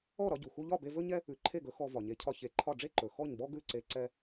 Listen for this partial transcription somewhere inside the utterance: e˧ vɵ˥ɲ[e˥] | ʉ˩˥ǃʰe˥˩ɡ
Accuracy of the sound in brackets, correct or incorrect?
incorrect: ɛ˥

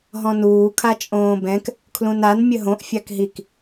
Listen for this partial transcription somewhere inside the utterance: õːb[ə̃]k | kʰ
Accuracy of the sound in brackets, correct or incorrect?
incorrect: ɛ̃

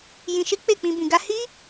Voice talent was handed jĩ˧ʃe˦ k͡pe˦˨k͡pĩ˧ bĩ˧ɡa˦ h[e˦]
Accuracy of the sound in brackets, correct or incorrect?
incorrect: i˦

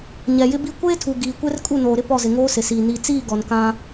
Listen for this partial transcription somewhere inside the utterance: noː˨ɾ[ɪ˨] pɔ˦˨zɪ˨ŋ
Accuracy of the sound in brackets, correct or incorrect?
incorrect: ɪ˦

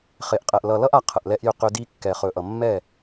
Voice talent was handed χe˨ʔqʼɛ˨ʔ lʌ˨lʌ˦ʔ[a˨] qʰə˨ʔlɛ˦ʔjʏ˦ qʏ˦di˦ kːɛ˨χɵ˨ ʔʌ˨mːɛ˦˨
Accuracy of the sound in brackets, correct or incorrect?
correct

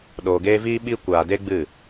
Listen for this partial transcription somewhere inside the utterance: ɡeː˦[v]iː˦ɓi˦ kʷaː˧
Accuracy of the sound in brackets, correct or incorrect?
correct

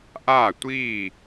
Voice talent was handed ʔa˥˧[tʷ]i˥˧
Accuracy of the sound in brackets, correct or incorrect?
correct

